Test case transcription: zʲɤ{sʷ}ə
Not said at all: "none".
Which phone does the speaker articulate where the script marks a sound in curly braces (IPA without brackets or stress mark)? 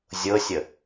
sʲ